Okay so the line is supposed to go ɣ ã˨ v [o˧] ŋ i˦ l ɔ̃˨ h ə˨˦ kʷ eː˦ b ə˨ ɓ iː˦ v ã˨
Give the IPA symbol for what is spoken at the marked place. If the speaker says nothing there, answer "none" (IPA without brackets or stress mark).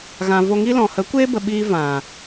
o˧